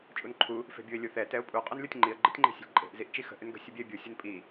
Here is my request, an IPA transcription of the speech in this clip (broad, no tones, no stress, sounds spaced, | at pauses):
t͡ʃʼ u n ǃʰ u | f e̤ bʲ u ɪ̯ lʲ u θ ɛ t ɛ ʊ̯ pʼ u qʼ o n lʲ o tʲ ŋ͡ǃ i ə̯ ɡ͡ǃ ə tʲ ŋ͡ǃ e̤ sʲ ə̤ lʲ ǃʼ e̤ ʔ z i ʔ t͡ʃ i x ə̤ ʔ ʏ n ɡ ə̤ sʲ ə bʲ ɛ ɪ̯ bʲ u sʲ u n pʼ i